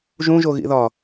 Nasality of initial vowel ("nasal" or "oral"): nasal